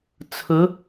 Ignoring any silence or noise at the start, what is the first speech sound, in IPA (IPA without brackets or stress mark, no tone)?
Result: t͡sʰ